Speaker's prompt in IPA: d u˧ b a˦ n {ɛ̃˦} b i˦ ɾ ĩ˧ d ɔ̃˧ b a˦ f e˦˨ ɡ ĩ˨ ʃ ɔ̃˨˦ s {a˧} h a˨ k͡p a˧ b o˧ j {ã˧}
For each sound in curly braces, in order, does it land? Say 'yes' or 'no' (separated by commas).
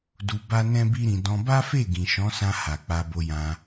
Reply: yes, no, yes